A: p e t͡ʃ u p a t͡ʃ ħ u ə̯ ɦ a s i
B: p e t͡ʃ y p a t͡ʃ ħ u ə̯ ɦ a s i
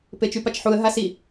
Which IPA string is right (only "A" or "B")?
B